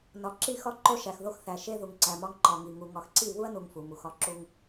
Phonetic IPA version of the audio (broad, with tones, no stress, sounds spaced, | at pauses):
n ɒ˨ ǁ i˦˨ x ɒ˦ ǃ o˦ ʃ æ˨ x ð o˦ x θ æ˨ ʃ e˦ ð u˨ ŋ ǀ æ˨ m ɒ˦ ŋ ǃ ɒ˨ ŋ i˨ ŋ u˨ ŋ ɒ˨ x ǀ i˦˨ β u˦ ɐ̯ n u˨ ŋ f u˨ m u˨ x ɒ˦ ǁ u˦ ŋ